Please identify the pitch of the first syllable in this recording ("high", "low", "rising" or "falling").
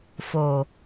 low